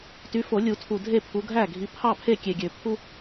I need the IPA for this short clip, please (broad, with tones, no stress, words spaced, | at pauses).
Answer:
ty˨˦fo˨˩˦ lʲu˨˩˦tʰu˨˩ dʱe˥˩pʰu˨˦ɡʱæ˥˩ ɡʱi˨˦pʰɑ˥˩pʰe˥˩ kʲe˨˩ɡʲø˨˩˦ pʰu˦